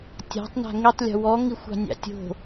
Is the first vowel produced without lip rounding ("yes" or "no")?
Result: yes